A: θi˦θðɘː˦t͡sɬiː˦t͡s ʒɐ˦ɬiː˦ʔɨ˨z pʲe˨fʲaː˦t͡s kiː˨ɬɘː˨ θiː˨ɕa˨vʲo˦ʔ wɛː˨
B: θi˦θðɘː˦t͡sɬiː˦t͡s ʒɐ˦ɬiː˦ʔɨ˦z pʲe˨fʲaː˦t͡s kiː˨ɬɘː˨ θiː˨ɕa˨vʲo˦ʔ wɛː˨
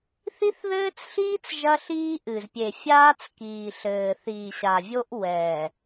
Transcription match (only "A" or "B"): A